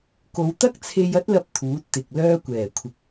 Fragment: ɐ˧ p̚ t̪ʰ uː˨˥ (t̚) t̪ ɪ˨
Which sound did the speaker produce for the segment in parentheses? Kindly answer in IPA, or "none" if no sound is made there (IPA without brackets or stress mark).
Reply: t̚